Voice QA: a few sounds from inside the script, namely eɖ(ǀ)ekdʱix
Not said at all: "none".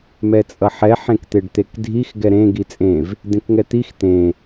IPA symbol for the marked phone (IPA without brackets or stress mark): t̪